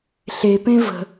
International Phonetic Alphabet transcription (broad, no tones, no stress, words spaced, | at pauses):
ɬepẽ və̤